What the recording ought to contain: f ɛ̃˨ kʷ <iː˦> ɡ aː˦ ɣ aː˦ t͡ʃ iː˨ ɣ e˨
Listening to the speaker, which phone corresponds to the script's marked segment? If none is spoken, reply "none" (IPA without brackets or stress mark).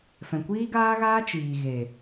iː˦